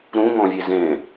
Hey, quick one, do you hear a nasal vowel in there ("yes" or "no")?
yes